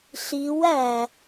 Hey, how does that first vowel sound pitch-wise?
rising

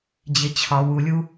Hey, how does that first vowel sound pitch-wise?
low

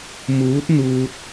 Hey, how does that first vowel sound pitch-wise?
rising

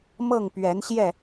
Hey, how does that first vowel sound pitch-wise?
falling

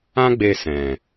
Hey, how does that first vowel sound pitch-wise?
high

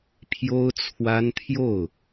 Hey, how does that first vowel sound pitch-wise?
high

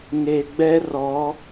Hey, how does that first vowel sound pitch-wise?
low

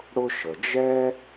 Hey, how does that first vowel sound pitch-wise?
high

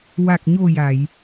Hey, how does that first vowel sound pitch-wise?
low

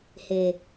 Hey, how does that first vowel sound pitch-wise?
low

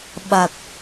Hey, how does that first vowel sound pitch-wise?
low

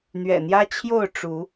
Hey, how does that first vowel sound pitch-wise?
low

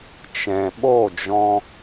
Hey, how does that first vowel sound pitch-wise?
low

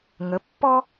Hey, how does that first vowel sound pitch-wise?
rising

